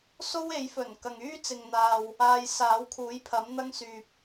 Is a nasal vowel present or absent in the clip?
absent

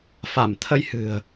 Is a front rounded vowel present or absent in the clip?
absent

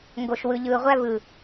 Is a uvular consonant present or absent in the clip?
present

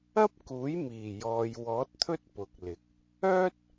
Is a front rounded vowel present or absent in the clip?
present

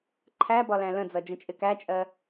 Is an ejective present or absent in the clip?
present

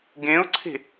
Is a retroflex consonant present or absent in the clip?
absent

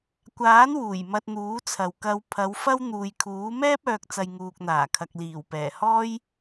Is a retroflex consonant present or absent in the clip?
absent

